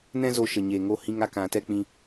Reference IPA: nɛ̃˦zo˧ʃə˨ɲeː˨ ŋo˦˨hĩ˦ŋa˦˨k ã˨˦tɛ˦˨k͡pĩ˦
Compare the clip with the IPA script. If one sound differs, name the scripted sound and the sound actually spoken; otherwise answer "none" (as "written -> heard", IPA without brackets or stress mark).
ɛ˦˨ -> ɛ˦